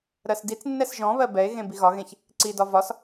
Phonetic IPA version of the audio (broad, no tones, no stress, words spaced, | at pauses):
ɾɜsdit͡snːɛs ʒɔ̃βɜ bɛe̯ɣẽ biɣɒɣẽç | ǀidɒ vɒs